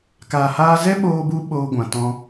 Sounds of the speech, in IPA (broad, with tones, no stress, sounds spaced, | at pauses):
k aː˨ h aː˧ z ɛ˦ ɓ oː˧ b u˧ ɓ oː˧ ɡʷ ã˨ t ɔ̃˧